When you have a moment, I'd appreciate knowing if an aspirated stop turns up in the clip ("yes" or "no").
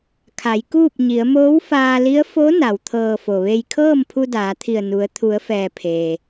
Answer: yes